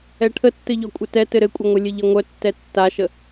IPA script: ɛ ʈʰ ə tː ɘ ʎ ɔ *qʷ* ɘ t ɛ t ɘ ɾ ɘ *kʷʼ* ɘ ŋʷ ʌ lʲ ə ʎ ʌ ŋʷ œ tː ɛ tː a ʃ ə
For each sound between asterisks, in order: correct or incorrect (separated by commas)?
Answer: incorrect, correct